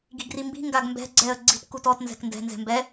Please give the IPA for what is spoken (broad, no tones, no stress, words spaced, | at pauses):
ɡi̤ɡrimbi̤ ŋɡaɡmbɛ̤ ɡ͡ǀɛə̯ ɡ͡ǀi̤t kutɔt nzɛ̤kndɛ̤ nzɛ̤mbɛ